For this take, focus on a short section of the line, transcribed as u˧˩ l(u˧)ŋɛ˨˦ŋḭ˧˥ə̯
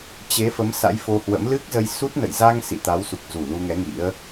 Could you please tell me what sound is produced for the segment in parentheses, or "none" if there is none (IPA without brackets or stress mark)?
u˧